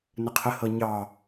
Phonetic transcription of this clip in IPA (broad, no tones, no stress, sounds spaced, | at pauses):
n ə qʰ ə h ɤ ɲ ɑ